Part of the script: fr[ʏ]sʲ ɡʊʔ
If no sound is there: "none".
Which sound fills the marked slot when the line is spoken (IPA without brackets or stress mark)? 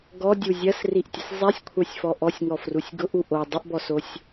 u